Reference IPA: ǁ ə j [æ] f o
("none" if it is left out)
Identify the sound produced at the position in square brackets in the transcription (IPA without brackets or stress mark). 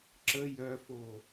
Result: œ